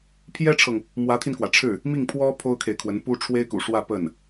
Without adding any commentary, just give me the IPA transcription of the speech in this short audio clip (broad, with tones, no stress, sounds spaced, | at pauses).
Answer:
pʰ j ɛ˥ ʈ͡ʂʰ ɤ˨ ŋ | m w ä˧˥ t̪ʰ i˧ n k w ä˩ ʈ͡ʂʰ ɻ̩˥˩ | m i˥˩ ŋ pʰ w ɔ˥ pʰ o˥ ʊ̯ kʰ e˨ ɪ̯ kʰ w ə˧˥ n p u˥ ʈ͡ʂʰ w e˥ ɪ̯ k ṵ˨˩ ʂ w ä˥˧ p ə˥˩ n